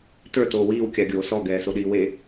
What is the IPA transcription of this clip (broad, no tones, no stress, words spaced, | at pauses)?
tə˞ toːwiːw kʲaɡʲoːsɔ ɡɛːsoɗiːwe